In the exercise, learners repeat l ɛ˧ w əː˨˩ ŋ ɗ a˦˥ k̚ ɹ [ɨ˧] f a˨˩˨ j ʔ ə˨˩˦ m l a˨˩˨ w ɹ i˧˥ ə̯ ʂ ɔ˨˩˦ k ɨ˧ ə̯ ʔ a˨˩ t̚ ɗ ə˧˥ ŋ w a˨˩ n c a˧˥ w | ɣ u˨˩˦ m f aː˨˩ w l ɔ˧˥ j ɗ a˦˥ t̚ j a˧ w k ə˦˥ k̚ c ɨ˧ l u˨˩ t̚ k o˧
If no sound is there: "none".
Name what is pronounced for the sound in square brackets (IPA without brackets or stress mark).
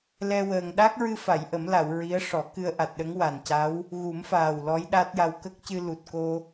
ɨ˧